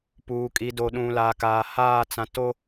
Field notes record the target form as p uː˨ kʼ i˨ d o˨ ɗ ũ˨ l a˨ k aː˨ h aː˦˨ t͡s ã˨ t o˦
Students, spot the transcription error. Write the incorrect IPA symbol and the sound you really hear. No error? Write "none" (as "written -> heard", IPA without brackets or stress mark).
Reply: none